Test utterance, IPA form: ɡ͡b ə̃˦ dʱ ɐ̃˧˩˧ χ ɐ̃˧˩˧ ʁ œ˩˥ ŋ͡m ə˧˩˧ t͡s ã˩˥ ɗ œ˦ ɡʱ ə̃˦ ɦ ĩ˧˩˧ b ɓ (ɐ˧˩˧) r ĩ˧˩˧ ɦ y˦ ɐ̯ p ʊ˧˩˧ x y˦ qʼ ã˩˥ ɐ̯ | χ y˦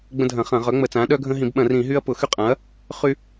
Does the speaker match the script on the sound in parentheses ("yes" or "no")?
no